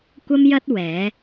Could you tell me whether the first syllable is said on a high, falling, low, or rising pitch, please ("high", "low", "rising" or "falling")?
high